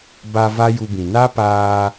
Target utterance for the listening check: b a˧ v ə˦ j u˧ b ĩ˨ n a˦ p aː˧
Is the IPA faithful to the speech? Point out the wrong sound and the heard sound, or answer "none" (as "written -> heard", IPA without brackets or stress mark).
ə˦ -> a˦